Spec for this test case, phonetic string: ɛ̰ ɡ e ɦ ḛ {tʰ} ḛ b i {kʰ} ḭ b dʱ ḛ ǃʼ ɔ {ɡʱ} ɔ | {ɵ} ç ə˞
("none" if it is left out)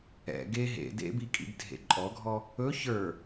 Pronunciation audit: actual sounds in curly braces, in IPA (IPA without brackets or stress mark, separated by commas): d, kʼ, ɡʱ, ɵ